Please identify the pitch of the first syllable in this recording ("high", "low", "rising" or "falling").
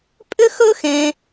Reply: high